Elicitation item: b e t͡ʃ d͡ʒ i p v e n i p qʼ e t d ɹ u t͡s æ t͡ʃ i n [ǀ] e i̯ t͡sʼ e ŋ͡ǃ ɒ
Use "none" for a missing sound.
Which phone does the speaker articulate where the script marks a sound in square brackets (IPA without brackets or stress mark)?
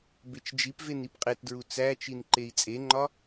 ǃ